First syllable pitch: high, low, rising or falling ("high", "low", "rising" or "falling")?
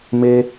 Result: high